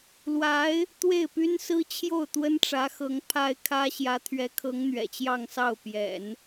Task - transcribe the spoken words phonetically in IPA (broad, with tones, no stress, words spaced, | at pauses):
lwa˧˥ɪ̯ | t̪we˥˩ɪ̯py˥nsɹ̩˥ t͡ɕʰjo˥˩ʊ̯t̪wə˥nʈ͡ʂä˧˥xɤ˧˥ŋ pʰa˥ɪ̯kʰä˥ ɕjä˧˥t̪ʰɥɛ˧˥kʰɤ˧˥ŋ n̪ɥɛ̰˨˩t͡ɕjɑ˥˧ŋ sɑ˥˩ʊ̯pjɛ̰˨˩˦n